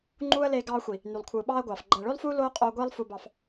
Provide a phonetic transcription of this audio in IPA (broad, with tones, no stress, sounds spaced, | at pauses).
ŋ͡ǃ uː˦ ə̯ l eː˧ ɡ ɑː˧ xʷ i˨ | n y˨ lˠ kʷʰ ɯː˨ ɓ ɑː˦ ə̯ ɡʷ ɑː˨ f ɡ͡ǃ æ˨ ɭ ø˦ lˠ f uː˦ l oː˦ qʼ oː˧ ɡʷ eː˦ lˠ f u˧ b ɑ˧ f